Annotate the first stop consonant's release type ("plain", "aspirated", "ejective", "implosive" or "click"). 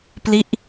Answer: plain